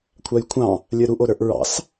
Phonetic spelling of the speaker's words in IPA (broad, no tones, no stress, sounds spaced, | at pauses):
kʷʰ a j kʷʰ ɑ̃ | lʲ ə˞ ɾ u ʔ o ɾ ə˞ ʔ ɹ ɑ̰ s